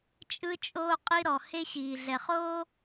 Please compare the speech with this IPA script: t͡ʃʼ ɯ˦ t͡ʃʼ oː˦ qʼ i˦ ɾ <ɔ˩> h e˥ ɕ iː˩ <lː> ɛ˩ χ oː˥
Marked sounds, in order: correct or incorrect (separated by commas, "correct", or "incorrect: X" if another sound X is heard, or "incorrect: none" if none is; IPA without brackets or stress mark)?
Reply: correct, incorrect: ɮ